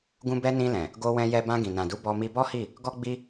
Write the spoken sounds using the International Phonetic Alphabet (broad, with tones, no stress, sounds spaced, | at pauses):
ɡ ũ˧ b ɛ˧ n ĩ˧ l ɛ̃˨ | ɡ o˧ w ɛ̃˧ j ɛ˧ b ã˧ ɡ ĩ˨ n ã˨ d u˨˦ b ɔ˧ m i˧ b ɔ˦ h i˦˨ | ɡ ɔ˦ ɡ͡b i˦